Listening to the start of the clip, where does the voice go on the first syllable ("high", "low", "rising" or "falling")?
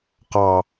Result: low